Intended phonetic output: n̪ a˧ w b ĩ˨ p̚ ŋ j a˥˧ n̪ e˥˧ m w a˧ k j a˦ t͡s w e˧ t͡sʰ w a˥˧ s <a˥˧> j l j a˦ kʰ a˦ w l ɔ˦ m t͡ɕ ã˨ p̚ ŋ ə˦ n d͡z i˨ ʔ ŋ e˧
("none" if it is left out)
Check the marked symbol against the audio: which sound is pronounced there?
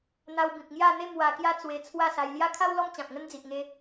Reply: a˧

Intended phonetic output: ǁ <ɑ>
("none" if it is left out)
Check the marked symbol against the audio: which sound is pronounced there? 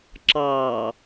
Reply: ɑ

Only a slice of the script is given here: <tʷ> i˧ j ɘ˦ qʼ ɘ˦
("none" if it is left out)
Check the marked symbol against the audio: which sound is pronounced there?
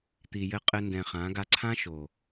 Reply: t̪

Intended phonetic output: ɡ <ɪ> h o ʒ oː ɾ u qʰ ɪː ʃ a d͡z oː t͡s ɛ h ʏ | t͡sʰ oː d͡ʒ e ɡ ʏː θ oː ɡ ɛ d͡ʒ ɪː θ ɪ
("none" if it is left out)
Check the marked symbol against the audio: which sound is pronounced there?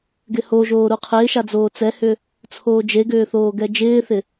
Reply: ɪ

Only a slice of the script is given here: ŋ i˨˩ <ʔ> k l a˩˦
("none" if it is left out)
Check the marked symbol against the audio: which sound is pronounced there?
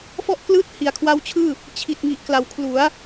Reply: ʔ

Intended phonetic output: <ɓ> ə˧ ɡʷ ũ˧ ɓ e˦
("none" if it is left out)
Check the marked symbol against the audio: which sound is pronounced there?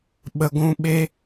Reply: ɓ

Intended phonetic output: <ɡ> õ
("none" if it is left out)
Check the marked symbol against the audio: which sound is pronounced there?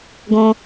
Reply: ɡ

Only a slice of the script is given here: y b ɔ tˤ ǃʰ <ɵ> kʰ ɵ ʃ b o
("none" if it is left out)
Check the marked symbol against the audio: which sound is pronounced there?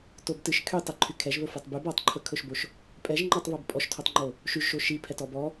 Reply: ɵ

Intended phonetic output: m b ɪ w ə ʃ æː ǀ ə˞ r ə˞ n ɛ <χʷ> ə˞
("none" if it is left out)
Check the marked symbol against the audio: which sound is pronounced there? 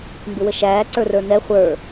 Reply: χʷ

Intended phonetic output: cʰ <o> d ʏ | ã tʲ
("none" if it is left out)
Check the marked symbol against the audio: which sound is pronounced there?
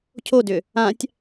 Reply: o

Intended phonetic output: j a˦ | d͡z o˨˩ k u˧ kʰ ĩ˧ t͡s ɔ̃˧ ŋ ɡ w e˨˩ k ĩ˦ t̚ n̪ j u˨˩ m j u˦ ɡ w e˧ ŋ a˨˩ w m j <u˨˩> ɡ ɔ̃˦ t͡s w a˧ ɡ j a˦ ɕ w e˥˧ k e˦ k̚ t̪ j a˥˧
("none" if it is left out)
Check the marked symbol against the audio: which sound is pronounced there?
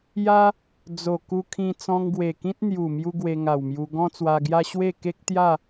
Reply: u˧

